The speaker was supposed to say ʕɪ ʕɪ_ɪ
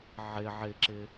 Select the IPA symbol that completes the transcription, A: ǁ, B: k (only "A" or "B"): A